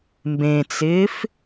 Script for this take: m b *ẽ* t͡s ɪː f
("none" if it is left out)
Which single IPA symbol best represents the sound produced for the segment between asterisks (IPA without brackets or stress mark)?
ẽ